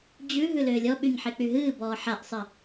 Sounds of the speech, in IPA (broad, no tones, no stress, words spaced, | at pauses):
d͡ʑʉ ɦʉlʏːlʲɔ ɓyɲħek͡pyɦɨː bɔːħaʔsˤɨ